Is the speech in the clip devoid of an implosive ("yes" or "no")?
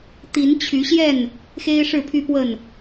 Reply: yes